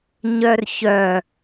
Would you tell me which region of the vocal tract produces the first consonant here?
palate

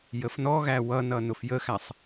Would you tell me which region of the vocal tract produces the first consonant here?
palate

